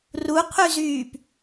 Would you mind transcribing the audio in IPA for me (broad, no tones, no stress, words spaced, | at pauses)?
ruqʰyzyːp